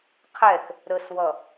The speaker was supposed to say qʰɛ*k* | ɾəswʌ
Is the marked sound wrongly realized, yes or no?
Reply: no